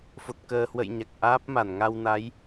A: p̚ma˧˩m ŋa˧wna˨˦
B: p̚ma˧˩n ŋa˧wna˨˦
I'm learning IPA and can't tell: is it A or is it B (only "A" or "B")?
B